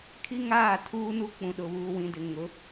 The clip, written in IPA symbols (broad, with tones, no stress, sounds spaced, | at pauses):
kʰ i˦ ŋ aː˦˨ tʰ uː˦ n u˦ k͡p ũ˨ ɗ ʊ˨ β uː˨ w ĩ˨ d ɪ˨ ŋ ʊ˨˦